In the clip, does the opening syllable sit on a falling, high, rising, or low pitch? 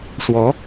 rising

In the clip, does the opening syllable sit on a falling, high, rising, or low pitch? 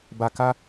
low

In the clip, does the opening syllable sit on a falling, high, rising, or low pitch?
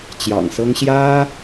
low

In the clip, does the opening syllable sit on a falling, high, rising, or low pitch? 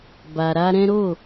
low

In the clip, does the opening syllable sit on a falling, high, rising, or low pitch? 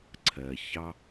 low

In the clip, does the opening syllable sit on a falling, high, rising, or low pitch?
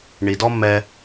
low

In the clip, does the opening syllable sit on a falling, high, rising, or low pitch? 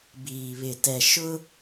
low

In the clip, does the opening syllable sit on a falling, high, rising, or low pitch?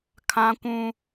high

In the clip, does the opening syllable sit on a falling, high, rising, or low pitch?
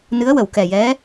rising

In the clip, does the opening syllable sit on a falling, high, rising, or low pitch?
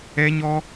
high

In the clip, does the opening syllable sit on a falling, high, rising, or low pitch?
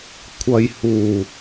low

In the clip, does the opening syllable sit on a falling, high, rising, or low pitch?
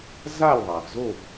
falling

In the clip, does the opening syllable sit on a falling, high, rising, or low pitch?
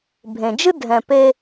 low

